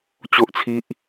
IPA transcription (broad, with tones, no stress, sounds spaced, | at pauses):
t͡ɕ o˦ ʔ t͡sʰ i˦ ʔ